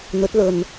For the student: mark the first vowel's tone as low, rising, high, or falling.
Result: rising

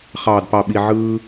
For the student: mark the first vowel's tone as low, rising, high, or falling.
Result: low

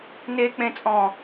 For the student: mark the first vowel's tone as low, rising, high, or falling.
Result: high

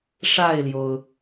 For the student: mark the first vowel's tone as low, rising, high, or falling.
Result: falling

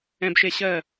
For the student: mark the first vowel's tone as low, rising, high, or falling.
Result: low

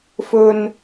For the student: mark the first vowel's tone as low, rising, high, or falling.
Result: low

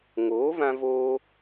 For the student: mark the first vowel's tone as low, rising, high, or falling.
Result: rising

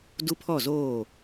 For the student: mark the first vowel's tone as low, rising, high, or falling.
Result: high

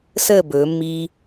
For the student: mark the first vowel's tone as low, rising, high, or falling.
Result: falling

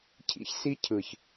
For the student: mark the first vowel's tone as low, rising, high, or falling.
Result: high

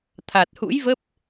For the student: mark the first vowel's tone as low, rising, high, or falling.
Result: low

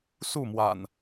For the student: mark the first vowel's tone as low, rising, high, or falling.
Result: falling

